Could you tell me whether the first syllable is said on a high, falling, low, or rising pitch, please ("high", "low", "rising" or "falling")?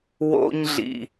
high